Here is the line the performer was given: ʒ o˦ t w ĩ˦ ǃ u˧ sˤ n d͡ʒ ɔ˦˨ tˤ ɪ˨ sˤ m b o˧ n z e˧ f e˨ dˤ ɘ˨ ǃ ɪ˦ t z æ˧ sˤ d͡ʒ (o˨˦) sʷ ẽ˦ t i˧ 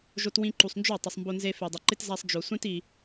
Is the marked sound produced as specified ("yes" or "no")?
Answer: no